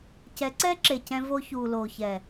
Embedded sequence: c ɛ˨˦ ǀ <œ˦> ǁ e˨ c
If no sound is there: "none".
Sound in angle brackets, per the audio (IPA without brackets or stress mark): ɛ˦